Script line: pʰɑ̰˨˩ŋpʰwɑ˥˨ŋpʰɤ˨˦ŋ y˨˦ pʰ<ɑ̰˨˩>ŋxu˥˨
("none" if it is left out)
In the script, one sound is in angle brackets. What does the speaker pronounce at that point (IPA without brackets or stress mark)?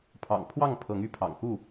ɑ̰˨˩